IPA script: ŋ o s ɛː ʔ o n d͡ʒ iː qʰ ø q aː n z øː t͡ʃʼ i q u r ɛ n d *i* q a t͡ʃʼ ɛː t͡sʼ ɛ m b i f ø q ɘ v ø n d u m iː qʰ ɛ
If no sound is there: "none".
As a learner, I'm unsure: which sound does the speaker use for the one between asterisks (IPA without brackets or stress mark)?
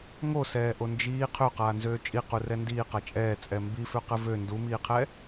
iː